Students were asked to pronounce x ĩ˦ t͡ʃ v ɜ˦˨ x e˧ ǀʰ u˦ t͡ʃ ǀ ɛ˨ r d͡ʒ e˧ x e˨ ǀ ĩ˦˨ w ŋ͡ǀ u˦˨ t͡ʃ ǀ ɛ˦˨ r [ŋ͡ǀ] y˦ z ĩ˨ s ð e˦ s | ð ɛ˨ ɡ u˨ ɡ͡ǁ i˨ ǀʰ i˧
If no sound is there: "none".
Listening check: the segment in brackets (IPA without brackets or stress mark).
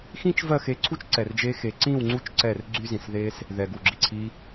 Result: ɡ͡ǀ